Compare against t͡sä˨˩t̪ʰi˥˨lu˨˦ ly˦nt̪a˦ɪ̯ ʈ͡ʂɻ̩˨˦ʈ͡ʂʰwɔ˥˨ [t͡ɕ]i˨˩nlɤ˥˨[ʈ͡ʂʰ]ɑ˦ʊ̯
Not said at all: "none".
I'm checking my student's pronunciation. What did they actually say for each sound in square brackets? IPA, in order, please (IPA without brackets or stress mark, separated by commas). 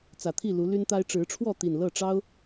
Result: t̪, ʈ͡ʂ